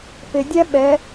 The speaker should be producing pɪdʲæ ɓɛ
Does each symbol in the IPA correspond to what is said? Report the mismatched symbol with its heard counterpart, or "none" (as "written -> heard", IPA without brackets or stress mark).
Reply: none